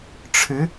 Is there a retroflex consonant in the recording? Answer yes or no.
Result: yes